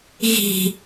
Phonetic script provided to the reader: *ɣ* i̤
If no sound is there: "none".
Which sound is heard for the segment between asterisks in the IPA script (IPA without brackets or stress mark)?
ɣ